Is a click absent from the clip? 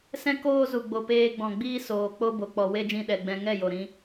yes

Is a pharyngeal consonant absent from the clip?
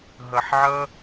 no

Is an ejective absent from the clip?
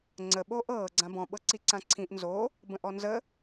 yes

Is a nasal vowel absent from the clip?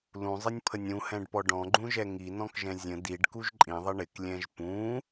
no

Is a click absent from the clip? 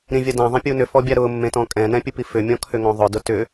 yes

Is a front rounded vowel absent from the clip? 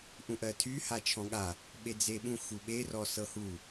no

